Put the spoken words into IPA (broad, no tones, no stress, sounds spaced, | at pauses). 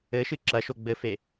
ɘ ʃ ɨ ǁ ɐ ʃ o ɡ͡b ɘ f e